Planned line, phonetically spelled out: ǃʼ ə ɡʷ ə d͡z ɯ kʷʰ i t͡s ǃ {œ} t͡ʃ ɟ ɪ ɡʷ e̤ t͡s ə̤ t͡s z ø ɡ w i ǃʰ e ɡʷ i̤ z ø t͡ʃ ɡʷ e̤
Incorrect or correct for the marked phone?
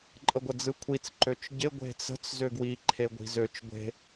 incorrect: ø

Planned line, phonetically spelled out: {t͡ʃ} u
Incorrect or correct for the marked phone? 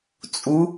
incorrect: t͡sʼ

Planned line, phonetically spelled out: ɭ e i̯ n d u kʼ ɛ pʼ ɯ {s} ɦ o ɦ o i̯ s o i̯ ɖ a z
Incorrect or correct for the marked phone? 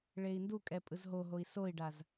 incorrect: z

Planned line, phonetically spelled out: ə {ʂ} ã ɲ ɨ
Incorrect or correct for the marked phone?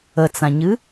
incorrect: t͡s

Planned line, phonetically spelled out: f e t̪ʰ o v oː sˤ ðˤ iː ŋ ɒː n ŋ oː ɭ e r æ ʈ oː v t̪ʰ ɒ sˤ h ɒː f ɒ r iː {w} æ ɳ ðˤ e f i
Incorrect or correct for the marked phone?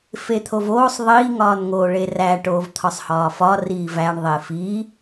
incorrect: v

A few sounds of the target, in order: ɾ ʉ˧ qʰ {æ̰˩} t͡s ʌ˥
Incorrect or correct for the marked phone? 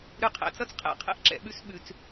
correct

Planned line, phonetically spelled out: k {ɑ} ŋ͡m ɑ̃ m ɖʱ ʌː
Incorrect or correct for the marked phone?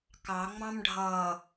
correct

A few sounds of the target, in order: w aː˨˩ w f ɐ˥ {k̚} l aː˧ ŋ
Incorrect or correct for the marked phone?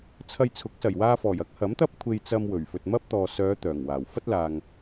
incorrect: t̚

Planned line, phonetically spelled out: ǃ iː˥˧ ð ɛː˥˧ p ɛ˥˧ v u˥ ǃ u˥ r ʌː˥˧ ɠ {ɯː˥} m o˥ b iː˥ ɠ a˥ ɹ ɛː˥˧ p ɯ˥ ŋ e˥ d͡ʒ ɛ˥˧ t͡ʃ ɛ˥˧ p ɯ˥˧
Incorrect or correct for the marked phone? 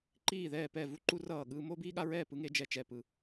correct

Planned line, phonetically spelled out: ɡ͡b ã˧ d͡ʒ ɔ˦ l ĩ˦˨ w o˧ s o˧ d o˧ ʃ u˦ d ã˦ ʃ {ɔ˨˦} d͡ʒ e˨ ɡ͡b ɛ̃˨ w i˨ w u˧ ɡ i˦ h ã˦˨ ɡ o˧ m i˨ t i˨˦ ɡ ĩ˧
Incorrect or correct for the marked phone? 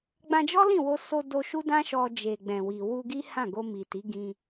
incorrect: ɔ˧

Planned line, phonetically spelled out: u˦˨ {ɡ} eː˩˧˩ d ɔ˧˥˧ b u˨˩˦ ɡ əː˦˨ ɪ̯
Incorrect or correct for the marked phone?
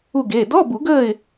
correct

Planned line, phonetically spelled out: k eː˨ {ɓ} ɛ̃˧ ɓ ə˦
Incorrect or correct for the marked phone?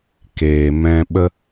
incorrect: m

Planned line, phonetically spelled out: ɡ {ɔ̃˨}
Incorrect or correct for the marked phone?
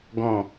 correct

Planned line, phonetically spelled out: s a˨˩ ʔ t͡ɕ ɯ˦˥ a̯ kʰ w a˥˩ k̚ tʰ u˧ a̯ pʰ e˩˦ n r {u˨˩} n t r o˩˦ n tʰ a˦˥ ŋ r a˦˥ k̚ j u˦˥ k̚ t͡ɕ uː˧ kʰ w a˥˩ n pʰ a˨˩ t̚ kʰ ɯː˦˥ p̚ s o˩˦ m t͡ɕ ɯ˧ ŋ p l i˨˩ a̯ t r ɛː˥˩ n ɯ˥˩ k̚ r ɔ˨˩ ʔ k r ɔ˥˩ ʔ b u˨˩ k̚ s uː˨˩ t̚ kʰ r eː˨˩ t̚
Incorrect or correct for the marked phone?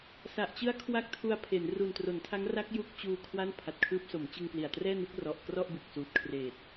correct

